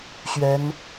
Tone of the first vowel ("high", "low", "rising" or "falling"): rising